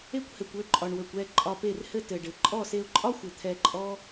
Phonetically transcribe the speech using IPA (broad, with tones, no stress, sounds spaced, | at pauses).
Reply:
e˦ kʷ h ɘ˨ kʷ ø˦˨ ǃʼ ɒ˨ ɳ w ø˨ kʷ ɛ˦˨ ǃʼ ɒ˧ p e˦˨ r h ɘ˦ t ɘ˨ ɖ ɘ˨ ǃʼ ɔ˦˨ s e˧ ʊ̯ ǃʼ ɒ˦ xʷ ɘ˨ t̪ʰ ɛ˧ ǃʼ ɔ˦